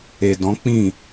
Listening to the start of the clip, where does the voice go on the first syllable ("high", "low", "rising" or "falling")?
low